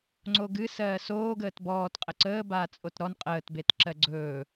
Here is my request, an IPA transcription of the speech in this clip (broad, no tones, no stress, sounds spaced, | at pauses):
ŋ͡ǀ o ɡ ɨ s ɜː s oː ɡ əː t b ɔː t qʼ ə ǀ əː b aː t͡sʼ o t ɾ ɔ n qʼ əː t b e t ǁ ɜ ɡ͡ǀ ɵː